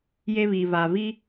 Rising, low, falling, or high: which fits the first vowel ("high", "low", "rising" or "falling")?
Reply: high